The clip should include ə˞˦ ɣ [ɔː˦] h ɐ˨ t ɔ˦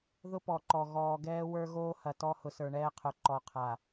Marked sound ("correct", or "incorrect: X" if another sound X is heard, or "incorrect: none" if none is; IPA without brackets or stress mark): incorrect: oː˦